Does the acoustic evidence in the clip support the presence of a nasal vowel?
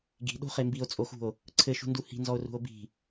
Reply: no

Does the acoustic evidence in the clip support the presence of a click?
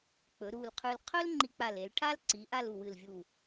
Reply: yes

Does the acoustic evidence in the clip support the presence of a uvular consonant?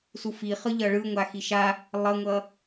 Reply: yes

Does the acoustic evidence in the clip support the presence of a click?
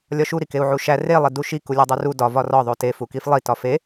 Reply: no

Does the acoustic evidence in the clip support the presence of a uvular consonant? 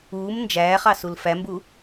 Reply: yes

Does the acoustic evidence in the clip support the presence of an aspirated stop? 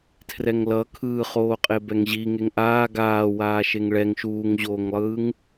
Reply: yes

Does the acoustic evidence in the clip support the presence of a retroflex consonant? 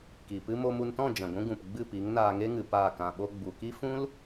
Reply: no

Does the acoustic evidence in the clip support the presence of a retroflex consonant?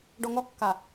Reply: yes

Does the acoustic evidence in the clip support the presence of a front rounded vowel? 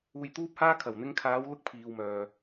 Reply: yes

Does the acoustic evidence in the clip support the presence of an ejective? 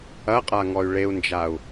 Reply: yes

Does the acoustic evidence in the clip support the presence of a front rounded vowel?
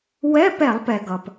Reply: no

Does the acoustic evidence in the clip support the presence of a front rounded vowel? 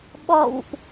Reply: no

